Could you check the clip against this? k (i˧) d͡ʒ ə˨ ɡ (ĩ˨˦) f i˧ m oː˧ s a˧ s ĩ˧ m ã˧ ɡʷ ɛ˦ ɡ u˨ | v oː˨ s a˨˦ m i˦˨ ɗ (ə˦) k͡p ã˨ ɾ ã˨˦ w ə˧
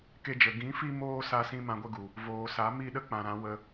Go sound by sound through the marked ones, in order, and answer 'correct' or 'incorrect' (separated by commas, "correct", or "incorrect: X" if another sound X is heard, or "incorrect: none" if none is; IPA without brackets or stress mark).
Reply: incorrect: e˧, correct, correct